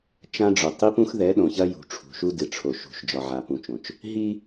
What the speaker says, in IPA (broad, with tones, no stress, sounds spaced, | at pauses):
t͡ʃ ã˦ ɖ͡ʐ o˨ tˤ i˦ p ũ˦ x ð ɛ˨˦ ɗ õ˨ ç ɐ˦ j ṳ˨ ʈ͡ʂʰ ṳ˨ ʃ u˦ d ɨ˨ ʈ͡ʂʰ o˨ ʃ ṳ˨ ʃ d͡ʒ ɒ˨ ʕ a˨ p ũ˨ t͡ʃ õ˨ t͡ʃ | ɦ i˦